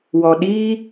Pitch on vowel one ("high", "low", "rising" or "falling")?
low